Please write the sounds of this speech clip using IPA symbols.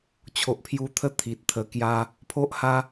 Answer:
t͡ɕʰo˨ʔpʰju˧t̪ʰə˦ t̪ʰi˨t̚t̪ʰə˧kja˦ | pʰo˦ʔ ha˦

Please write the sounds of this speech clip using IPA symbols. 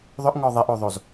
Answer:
ðˤʏʔŋɔ ðˤeʔoðˤoz

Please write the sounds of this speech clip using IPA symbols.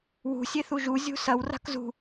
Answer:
wṳ sʲeθuʒu zʲṳsɐw ra̤kzṳ

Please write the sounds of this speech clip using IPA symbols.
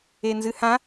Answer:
enzɨhã

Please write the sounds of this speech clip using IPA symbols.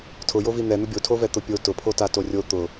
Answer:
tʰʊjovi n̪ɛn̪ʊ bʲotʰovɛt̪ʊ pʲo tʊpʰotato rʲo t̪ʊ

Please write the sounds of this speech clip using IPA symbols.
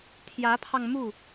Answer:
t̪ʰjä˧˥pʰɑ˧ŋmu˥˩

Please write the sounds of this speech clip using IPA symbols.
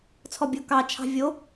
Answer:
t͡sʰɔbʲo kɑ t͡ʃʰɑ̤vʲo

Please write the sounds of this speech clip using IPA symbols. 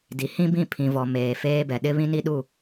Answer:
di˨˦hĩ˦bĩ˦˨ pʰĩ˨vɔ˨ meː˨feː˦bɛ˨ ɗɪ˦βĩ˦ni˦ ɗu˦˨

